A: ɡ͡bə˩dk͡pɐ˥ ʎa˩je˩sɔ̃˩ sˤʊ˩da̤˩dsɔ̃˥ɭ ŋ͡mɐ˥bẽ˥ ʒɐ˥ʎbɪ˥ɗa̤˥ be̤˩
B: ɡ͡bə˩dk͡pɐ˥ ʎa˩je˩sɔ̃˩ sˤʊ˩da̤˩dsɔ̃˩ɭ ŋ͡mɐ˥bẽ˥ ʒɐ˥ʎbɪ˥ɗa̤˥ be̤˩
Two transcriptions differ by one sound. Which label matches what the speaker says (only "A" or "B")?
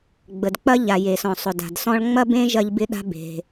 A